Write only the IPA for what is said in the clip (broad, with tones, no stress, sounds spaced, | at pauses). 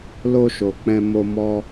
l o˧ ʃ o˨ k͡p ɛ̃˨ m o˧ m ɔ˧